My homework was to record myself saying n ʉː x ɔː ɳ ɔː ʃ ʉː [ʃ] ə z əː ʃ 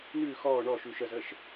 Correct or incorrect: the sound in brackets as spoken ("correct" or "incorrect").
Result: correct